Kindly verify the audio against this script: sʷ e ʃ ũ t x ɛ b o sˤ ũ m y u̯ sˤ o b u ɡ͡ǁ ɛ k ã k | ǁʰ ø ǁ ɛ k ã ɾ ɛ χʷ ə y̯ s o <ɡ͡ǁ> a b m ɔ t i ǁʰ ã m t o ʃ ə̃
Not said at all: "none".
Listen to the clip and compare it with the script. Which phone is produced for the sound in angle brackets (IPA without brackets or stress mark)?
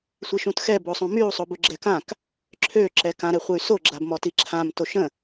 ɡ͡ǁ